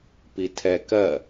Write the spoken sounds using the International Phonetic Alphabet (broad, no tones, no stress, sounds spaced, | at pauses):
p i tʰ ɛ k ɜ